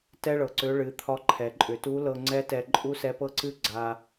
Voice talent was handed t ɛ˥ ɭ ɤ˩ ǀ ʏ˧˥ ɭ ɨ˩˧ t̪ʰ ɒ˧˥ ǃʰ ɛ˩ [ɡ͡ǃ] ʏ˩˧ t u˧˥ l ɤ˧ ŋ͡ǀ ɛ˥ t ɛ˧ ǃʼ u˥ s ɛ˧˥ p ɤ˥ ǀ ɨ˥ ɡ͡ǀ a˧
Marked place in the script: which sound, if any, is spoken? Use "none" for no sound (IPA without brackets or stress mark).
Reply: ǃʼ